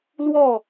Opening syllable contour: falling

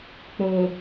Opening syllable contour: low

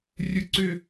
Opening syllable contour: high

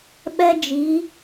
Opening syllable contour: high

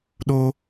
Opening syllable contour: high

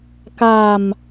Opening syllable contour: low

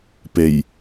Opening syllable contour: low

